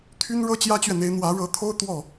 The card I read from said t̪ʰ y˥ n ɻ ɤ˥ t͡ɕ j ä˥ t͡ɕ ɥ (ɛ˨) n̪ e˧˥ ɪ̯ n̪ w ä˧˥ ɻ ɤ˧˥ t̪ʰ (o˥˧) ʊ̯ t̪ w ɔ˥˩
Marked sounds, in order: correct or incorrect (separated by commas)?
correct, incorrect